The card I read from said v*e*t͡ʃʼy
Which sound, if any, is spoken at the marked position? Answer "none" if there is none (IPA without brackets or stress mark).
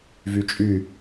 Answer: y